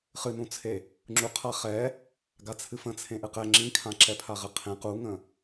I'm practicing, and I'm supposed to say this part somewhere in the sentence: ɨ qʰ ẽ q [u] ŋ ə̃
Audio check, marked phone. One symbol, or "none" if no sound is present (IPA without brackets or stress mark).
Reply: u